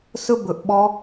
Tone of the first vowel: high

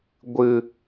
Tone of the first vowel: low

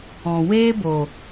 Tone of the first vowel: low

